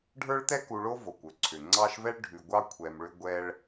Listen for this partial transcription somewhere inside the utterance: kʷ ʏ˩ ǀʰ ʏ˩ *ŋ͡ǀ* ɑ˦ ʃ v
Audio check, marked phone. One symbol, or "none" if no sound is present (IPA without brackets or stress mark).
ŋ͡ǀ